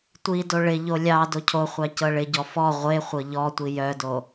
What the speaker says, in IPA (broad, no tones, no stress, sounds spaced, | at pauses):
tʷ i d o ɭ ɪ ʎ o lʲ ɑ d o cʰ o χʷ ɑ c ɤ ɭ ɪ ɟ ɔ f ɔ ʁʷ e χʷ ɤ ʎ ɔ tʷ i j œ d o